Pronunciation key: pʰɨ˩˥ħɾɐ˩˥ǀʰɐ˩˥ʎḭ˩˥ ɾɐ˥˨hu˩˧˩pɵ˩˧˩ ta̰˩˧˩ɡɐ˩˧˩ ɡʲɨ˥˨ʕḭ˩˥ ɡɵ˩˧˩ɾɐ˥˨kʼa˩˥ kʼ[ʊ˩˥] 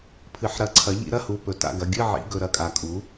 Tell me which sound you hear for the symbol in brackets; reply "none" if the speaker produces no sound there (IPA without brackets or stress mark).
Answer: u˩˥